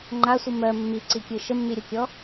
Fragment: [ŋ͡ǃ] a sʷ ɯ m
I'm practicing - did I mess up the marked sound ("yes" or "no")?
no